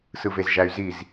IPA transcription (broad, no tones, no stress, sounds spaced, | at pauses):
s ɯ v e z ʒ æ y̯ z i z